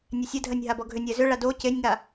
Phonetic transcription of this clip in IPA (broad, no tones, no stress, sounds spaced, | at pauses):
nʲ ɛ sʲ ɛ dʱ ɜ nʲ ɦ a b ɔ ɡʱ ʏ nʲ ɛ z ʏ ɭ a d o c e nʲ ŋ a